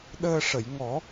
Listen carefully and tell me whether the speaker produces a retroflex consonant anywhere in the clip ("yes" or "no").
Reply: yes